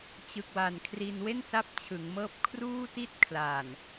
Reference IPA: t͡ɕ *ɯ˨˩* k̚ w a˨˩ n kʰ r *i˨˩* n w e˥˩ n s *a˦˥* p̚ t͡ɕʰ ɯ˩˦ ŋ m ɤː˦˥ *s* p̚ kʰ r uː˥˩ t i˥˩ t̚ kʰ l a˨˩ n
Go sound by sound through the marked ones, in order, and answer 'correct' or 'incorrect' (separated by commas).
correct, incorrect, correct, incorrect